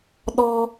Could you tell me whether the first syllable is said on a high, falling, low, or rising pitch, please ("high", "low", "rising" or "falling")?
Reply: high